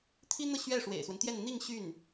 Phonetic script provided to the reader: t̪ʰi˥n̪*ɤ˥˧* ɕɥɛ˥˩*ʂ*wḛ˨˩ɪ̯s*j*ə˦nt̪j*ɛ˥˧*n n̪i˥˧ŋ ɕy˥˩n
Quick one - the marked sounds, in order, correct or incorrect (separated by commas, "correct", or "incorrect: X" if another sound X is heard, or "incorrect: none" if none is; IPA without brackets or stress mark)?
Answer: correct, correct, incorrect: w, correct